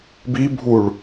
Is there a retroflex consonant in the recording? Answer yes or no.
yes